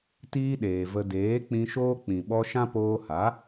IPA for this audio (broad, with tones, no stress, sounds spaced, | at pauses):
t iː˦ ɗ eː˨ v ə˧ d eː˨˦ k͡p ĩ˧ ʃ oː˦ k͡p ĩ˨ ɓ ɔ˧ ʃ ã˦ p oː˧ h a˨˦